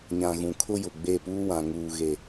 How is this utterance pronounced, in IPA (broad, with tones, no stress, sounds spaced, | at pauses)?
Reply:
ɲ ã˨ ɣ ũ˨ kʰ ʊ˦ j ʊ˨ ɡ͡b e˦˨ p uː˦ w ã˨ ŋ uː˨ ɣ e˨